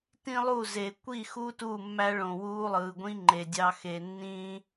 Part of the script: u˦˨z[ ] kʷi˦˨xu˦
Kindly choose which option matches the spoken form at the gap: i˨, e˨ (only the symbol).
e˨